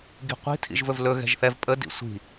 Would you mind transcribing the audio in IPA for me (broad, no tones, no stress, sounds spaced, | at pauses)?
ɡ i̤ qʷ i̤ tʰ ḭ ʒ v ɵ v l ɵ ɣ ɛ̤ ʒ θ ɛ v pʼ ə d ḭ sʷ i̤